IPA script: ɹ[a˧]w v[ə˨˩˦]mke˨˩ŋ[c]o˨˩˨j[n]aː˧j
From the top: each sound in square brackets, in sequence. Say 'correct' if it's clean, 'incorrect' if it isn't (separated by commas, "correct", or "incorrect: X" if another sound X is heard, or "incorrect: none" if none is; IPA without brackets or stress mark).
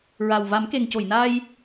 incorrect: a˨˩, incorrect: a˨˩˦, correct, correct